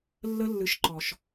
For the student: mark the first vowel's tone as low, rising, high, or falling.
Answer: high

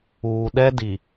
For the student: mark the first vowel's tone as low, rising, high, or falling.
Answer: low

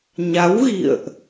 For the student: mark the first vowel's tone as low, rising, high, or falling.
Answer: rising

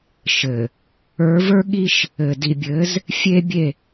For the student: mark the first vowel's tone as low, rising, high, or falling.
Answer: low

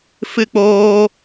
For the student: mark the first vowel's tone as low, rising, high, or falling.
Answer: high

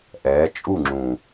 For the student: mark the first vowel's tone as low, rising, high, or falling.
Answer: rising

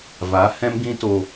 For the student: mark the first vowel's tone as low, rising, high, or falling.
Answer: rising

